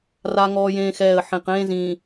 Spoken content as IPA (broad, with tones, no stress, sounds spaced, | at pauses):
r a˦ ŋ ɔː˦ j ẽː˦ x ɛː˦˨ ə̯ ħ ĩ˨ q ẽː˦ z ĩː˨